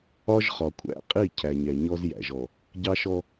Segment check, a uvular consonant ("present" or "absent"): present